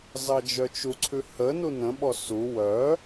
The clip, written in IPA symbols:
z ɑ d͡ʒ œ t͡ʃ u ǀʰ ʉ h ə n u n ə̃ ɓ ɔ s u w œ

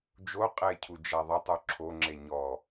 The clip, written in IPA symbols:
d͡ʒ o qʼ e cʰ u d͡ʒ a ðˤ ɪ tˤ u ǁʰ o ŋ͡ǁ e ɲ ɔ

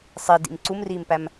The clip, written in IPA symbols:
sˤ i d ḭ m ǀ u m r iː m p æ m

